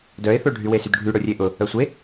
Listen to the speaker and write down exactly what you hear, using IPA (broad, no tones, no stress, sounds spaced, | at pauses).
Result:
d œ ɪ̯ θ o ɖʱ y w e s y d ɖʱ y ɽ ʊ rʲ e ʔ ʊ | œ sʷ e